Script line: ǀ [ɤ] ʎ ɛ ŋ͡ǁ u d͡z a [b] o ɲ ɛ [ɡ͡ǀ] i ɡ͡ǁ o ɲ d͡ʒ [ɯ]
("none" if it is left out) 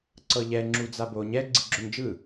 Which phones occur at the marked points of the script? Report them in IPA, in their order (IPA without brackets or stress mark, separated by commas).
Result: ɤ, b, ɡ͡ǀ, ɯ